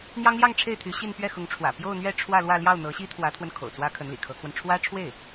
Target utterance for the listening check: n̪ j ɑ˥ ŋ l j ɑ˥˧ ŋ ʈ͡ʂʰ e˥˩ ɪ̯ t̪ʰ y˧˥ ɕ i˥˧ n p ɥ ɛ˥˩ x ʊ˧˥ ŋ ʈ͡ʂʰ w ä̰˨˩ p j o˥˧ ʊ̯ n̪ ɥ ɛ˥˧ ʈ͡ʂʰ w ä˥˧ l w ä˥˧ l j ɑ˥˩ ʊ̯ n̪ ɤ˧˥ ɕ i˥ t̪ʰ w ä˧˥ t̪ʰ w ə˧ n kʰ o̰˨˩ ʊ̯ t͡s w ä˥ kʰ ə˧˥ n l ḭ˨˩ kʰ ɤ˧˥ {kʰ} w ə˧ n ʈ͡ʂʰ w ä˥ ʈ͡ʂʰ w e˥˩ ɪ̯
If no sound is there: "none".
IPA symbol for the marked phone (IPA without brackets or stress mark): kʰ